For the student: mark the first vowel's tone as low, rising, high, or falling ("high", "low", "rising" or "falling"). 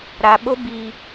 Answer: low